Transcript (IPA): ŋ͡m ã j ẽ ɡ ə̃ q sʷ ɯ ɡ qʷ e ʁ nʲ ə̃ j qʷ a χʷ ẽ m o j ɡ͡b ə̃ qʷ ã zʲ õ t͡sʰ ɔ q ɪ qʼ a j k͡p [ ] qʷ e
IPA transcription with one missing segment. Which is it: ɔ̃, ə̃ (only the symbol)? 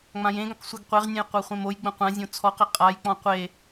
ɔ̃